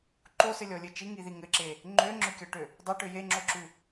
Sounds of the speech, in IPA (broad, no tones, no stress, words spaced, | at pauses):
ǃosɘlʲɔlʲɘ t͡ʃiŋiði ŋɘǁe | ŋ͡ǃøŋ͡ǁøkʲɔʈø | dˤøʈø jeŋ͡ǁoǁʉ